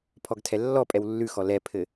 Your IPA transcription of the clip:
pʰ ɔ ɡ tʰ ɛ lː ɔ pʼ ɛ w lː ʉ x ɔ l ɛ pʰ ɘ

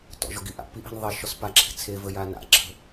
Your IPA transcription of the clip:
t ɔ̰ ʒ ɔ ɡ i ʔ a̰ p i ʔ i̤ n ðˤ e ʃ ɔ s p a ǁʰ i̤ t͡sʰ e v ə j a n a̰ ǁʰ ə̤

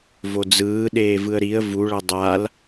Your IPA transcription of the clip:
v o d͡z ɯː ɗ eː v ɯ ə̯ ɾ i ə̯ v u ɭ ʌ dˤ a l

